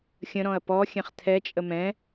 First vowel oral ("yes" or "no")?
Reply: no